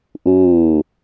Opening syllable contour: falling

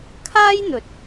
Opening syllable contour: high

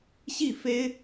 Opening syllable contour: falling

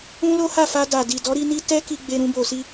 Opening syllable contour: high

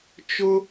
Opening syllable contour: high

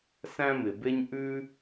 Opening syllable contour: high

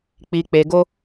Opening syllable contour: low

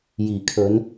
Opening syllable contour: low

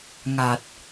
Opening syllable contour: low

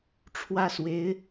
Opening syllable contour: high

